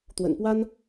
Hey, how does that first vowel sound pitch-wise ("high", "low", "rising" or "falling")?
low